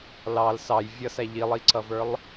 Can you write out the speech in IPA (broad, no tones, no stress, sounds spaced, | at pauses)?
l ɑ l s ɑ j vʲ ʌ s æ ʎ i lˠ i ǀ ʌ v ə˞ lˠ